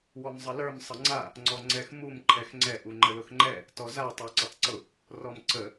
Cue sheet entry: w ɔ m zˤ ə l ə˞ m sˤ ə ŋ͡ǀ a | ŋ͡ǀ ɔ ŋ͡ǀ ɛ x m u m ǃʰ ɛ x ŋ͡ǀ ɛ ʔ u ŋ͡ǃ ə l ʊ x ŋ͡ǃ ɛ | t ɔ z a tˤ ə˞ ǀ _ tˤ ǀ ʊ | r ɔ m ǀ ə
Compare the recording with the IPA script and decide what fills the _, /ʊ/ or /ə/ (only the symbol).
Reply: ə